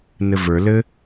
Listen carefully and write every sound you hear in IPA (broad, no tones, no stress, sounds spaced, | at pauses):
n ɘ v ə˞ l ɘ